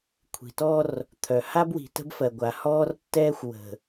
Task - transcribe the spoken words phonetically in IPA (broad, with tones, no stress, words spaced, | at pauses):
kʷʰi̤˨tɔ˦r | t̪ʰœ˨ ha˦bwi̤˨tə̤˦bfɜ˨ ɡʷa˨hɔː˦rtːɛː˦xʷ wə̤˨